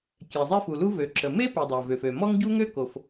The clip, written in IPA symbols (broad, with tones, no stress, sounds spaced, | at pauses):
kʲ ɛ˩ zˤ e˥ f u˩ l u˥ v ø˩ ǁ ə˩ m e˥ p i˩ dˤ a˩ v ø˩ f ø˩ m ɔ˥ ŋ ɟ u˥ ŋ ø˥ k o˩ f